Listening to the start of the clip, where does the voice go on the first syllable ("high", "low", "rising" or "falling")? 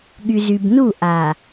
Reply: low